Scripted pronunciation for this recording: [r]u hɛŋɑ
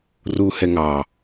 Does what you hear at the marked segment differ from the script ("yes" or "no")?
no